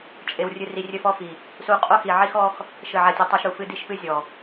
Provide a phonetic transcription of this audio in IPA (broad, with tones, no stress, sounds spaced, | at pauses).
t͡ʃʼ e˧ w rʲ ɨ˧ r i˧ rʲ ɘ˦˨ f ɔ˦ f i˨ | s u˧ qʼ o˦ x i˨ ʕ i˦ x ɔ˦ x | ʃ ɘ˦˨ ʕ a˦ tʲ u˧ tˤ ɐ˦ ʃ ɾ u˨ f ɨ˧ d i˧ ʃ p ɨ˧ zʲ ɔ˨